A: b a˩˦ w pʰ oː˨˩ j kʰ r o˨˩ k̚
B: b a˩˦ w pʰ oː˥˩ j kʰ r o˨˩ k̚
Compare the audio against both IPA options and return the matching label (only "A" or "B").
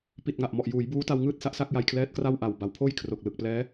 B